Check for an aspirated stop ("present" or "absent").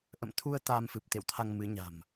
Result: present